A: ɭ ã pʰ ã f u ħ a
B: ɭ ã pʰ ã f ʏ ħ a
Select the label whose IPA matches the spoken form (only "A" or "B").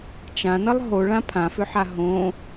B